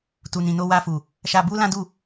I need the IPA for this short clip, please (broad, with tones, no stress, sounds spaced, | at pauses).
t u˨ n ĩ˨ n o˧ w a˧ f u˨ | ʃ a˧ b u˦ l ã˦ d u˦˨